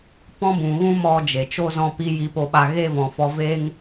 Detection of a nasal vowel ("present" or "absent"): present